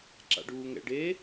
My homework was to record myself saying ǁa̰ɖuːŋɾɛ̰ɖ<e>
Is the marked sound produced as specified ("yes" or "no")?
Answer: yes